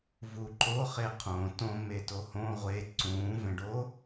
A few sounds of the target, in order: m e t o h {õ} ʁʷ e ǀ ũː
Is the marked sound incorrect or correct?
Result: correct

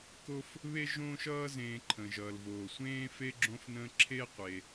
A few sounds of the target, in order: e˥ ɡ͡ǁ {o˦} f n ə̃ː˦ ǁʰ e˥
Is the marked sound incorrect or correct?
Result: incorrect: õ˦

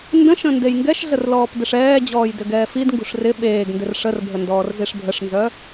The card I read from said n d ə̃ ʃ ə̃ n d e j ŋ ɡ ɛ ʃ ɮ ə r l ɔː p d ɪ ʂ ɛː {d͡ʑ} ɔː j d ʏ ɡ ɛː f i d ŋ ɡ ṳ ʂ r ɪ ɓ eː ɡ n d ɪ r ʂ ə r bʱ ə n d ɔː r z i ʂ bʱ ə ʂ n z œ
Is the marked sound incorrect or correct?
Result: correct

